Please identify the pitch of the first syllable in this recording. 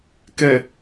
low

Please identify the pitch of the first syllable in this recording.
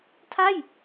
falling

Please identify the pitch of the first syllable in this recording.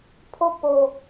falling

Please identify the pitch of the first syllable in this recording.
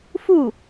falling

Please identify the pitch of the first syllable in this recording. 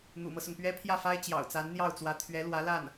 low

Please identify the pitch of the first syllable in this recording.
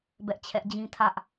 high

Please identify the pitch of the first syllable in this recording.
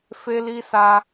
high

